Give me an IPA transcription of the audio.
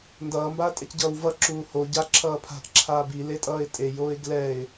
n d ʌː m b aː tʼ ɛ c ɟ ʌː w v ʌ ǁ uː h o ɟ a ǁʰ ʌː pʰ a̤ ʔ ǁʰ aː b i l e tʼ ʌː ɪ̯ tʼ e j oː ɪ̯ ɡ l ɛ ɪ̯

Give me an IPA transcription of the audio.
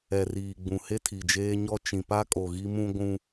ɛ˨ r iː˨ ɡ͡b ũ˨ h e˦ tʰ i˨ d͡ʒ eː˦ ɲ ɔ˦ t͡ʃ ĩ˨ p a˦ kʼ o˨ ɣ i˦ m ũ˦ ɡʷ ũ˦

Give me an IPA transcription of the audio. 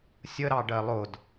sʲ ə ɾ ɑ ɖ ɜ lˠ ʊ d

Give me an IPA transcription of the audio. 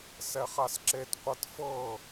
s ɛ χ a s ǁ e t qʷ ɤ t f ɤ

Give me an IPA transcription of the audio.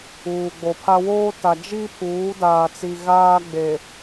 uː˨ ɡ͡b o˨ pʰ a˦ w oː˦ t a˨ d͡ʒ i˦ pʰ uː˨˦ d aː˨ t͡s i˨ ɣ aː˦ ɡ͡b e˨

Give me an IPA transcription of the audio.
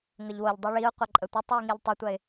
ŋ ə ʎ w o ʎ dˤ o ɭ i ʊ̯ qʷ a ǃʼ ə tʷ i tˤ w i ŋ i ʎ tˤ o tʷ ɜ ɪ̯

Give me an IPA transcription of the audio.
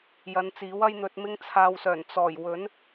j ɐ˨˧ n t͡s iː˨˥ w ɐ˥ j n̪ ɵ˧ t̚ m ɪ˧ ŋ t͡sʰ aː˨ w s œː˨˩ n t͡s ɔː˨˩ j w ɵ˨˥ n

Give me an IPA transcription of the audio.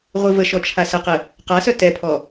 ʁʷ i v ə ʃ ɔ t͡ʃʰ a s ə q ə | q a s œ t ɛ pʰ ɔ

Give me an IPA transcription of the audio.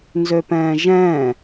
n z ø p ɛ̃ː ʒ ɛ̃

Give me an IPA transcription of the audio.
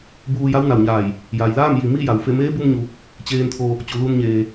b uː˧ j a˧˥ w n a˩ w ɲ aː˧˩ j | j a˩ j l aː˥˨ m j i˩ m i˥˨ j a˩ w f e˥˨ m eː˧˥ b u˧ m ɲ u˩ | t͡ɕ eː˧ n t̪ʰ o˧ | t͡ɕ u˩ l u˧ n ɲ eː˩

